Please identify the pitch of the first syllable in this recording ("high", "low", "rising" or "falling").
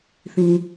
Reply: low